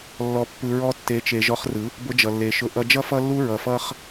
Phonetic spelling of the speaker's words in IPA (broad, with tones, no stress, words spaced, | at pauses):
lːɔ˧pːɯ˧ ɹɔ˧tːe˨˦t͡ʃe˨ ʒɔ˧χrɯ˨˦ | bʊ˧d͡ʒʌ˨lːe˨ ʃʊ˧ ʔʌ˧d͡ʒʌ˦ fʌ˦lːu˦ ɹʌ˨fʌ˦χ